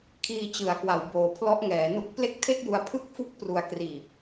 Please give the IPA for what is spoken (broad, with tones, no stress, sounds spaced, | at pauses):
kʰ iː˧ t͡ɕ ɯ˩˦ a̯ k w a˩˦ w b oː˨˩ pʰ l ɔ˦˥ ʔ ŋ ɛː˩˦ n u˦˥ k̚ p l e˥˩ k̚ tʰ e˥˩ k̚ j u˧ a̯ pʰ ɯ˥˩ k̚ f u˥˩ k̚ p r u˧ a̯ k r iː˨˩ p̚